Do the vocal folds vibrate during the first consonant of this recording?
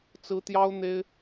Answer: no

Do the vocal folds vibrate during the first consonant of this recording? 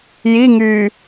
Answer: yes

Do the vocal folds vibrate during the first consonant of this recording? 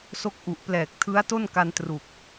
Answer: no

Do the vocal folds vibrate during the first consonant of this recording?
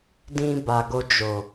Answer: yes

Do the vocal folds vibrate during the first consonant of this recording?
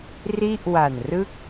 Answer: yes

